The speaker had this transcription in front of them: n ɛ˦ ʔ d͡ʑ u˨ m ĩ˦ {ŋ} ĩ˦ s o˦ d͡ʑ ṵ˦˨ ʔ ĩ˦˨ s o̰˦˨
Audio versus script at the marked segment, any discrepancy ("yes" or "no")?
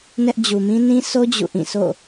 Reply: yes